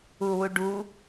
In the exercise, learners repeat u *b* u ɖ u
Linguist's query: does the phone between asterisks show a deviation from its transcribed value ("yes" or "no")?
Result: yes